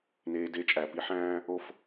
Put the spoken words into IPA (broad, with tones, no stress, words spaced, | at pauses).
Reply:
neː˩de˨˩˦ t͡ʃʼæ˩pi˨˦ħæ̃ː˦ | o˧˩f